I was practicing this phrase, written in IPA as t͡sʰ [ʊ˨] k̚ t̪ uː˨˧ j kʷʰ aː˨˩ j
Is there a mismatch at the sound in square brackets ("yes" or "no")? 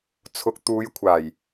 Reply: no